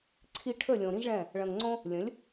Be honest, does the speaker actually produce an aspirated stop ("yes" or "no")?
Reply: yes